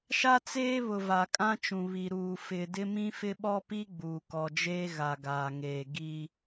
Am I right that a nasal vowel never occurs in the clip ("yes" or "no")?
no